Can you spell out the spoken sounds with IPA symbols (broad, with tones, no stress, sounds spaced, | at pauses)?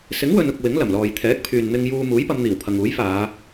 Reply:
s ɪ˨˥ ŋ w ɵ˨ n ʊ˨ k̚ w ɪ˨˥ ŋ l ɐ˨˩ m l ɔː˨ j t̪ʰ ɛː˨˥ k̚ pʰ yː˨ n n̪ ɪ˧ ŋ j uː˧ m uː˨˥ j p ɐ˨˧ m n̪ iː˨˩ w pʰ ɐ˨ ŋ uː˨˥ j f aː˨˧